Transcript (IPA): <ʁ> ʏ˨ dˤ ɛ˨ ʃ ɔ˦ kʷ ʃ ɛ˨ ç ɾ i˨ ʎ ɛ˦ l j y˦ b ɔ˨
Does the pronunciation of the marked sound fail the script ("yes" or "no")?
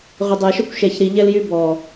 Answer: no